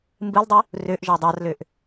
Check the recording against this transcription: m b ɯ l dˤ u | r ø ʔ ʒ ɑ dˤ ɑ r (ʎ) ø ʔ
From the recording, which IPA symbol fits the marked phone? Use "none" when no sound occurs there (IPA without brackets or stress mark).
l